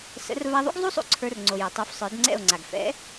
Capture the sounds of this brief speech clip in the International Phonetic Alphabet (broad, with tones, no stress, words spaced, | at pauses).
sə̰˨˦r va˧ðˤṵ˦ɡzˤu˦sˤṵ˧ ǀʰə˞˧rŋ͡ǀo˨ jə˨tˤu˨˦f sˤə˞˨˦dŋ͡ǀɛ̰˦˨o̯ŋ͡ǀa˨ɡ fɛ̰˨˦